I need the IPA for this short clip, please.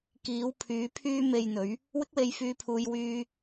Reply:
k iː˨˧ w pʰ yː˨˧ pʰ yː˧ m e˨ j n̪ ɵ˨˧ ɥ | w ɪ˥ k̚ w e˧ j f yː˧ pʰ uː˧ j w yː˧

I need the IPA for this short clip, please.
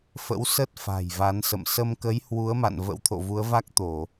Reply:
f ə̰˧˥ w s ə˦˥ t̚ f a̤˨˩ j v a˨˦ n s ə̰˧˨ m s ə˧ m k ə˨˦ j h w u˨˦ ə̯ m a̰˧˨ n v ə̰˧˥ w t̪ʰ o̰˧˨ v u˨˦ ə̯ v a˦˥ k̚ t̪ o˧˩˨

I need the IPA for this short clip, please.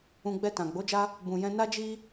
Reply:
ũ˧ ɡ͡b ɛ˧ t ã˨ ɡ͡b o˨˦ d͡ʒ a˦ | b ũ˨ j ɛ̃˧ n a˦ d͡ʒ i˦

